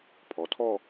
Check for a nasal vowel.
absent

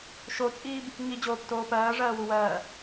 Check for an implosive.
absent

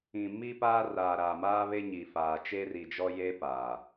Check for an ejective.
absent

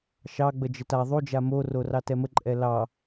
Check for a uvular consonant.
absent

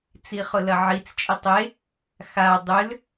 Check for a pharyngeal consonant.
present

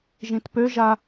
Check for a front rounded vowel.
present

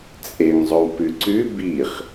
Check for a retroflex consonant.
absent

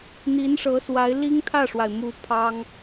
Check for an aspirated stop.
present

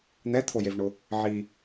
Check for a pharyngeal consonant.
present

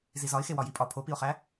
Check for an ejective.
present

